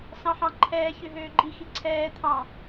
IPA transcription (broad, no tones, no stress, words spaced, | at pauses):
sɑ̃ħɑ̃ǃʰɛː çøɦøːɡ͡ǃi xiǀʰɛː t̪ʰɑ̃